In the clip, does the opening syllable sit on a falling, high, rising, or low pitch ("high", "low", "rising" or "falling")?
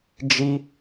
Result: high